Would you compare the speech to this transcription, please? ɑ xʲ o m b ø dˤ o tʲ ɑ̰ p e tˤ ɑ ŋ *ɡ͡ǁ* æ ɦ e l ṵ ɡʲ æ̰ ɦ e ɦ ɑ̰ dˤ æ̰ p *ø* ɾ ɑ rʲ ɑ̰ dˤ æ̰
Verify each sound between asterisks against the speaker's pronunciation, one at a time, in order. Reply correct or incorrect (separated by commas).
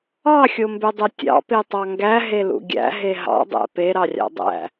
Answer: incorrect, incorrect